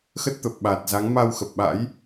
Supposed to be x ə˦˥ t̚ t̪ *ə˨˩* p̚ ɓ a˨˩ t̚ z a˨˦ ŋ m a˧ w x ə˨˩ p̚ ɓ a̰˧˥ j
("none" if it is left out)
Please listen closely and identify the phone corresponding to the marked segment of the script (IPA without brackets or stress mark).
ə˨˩